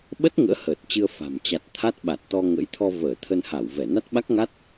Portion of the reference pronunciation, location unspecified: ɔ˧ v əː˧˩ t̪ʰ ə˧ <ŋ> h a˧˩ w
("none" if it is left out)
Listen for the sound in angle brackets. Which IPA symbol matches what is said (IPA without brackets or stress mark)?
n